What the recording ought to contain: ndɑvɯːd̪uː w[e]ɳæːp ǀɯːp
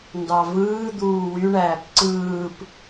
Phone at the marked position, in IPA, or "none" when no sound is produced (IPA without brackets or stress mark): y